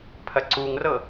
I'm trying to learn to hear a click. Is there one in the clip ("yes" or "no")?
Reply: yes